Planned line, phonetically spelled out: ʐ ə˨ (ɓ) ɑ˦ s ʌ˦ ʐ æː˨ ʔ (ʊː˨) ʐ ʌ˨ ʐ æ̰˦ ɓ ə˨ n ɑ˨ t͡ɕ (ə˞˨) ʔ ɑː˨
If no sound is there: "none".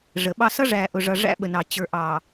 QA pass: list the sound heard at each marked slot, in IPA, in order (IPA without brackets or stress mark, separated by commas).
ɓ, ʊ˨, ə˞˨